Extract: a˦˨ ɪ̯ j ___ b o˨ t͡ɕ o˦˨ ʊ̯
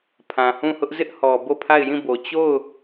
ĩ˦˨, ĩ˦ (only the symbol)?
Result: ĩ˦˨